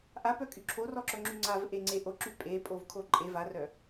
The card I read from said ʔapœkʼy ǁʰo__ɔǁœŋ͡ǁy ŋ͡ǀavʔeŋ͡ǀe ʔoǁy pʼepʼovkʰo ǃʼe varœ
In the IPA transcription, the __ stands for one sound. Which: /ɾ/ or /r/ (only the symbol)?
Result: r